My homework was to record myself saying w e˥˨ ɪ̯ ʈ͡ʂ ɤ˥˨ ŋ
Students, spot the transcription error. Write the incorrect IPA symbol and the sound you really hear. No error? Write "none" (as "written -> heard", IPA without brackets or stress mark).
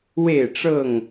none